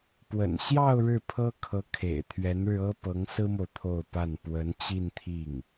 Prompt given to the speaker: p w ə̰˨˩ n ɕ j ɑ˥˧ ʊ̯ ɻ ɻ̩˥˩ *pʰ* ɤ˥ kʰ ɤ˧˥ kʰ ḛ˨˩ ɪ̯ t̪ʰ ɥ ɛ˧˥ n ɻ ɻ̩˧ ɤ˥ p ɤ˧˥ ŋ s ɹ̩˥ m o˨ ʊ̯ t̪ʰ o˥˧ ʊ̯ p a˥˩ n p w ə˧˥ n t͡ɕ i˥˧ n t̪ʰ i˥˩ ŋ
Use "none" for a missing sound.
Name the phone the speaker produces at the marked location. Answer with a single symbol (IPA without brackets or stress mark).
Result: pʰ